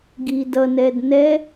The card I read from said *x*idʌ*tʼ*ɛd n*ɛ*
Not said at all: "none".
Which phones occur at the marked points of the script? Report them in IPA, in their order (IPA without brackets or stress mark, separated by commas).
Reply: ɡ, n, ɛ